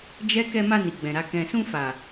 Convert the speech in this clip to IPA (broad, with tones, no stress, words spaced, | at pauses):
d͡ʒɛ˦ kɛ˧ma˧ ni˨ɡ͡bɛ̃˨ɾa˧ kɛ̃˨sũ˧ fa˨